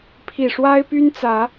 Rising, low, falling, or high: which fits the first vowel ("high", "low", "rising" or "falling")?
low